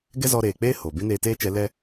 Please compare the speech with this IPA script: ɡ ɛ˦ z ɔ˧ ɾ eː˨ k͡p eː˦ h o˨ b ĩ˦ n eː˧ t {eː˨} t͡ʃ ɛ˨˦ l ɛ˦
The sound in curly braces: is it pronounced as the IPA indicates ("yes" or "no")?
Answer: no